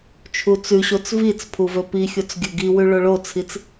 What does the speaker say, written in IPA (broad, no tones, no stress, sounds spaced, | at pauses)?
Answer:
t͡ʃʰ u t͡s ʉ ɕ o t͡s v i t͡s pʰ u v ɵ p i xʲ o t͡s ɡʲ ɵ ɡ i w ʉ ɭ o ɭ o t͡sʰ i t͡s